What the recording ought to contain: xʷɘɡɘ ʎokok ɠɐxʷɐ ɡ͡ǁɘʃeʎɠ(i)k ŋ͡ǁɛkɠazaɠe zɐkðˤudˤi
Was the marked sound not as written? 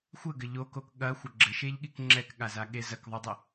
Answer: no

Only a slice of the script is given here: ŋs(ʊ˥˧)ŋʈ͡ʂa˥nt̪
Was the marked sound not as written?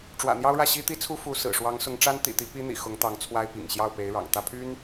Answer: yes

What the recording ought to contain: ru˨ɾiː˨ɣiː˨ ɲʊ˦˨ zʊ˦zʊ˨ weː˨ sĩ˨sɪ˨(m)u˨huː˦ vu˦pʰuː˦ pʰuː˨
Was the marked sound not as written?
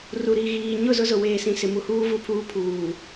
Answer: no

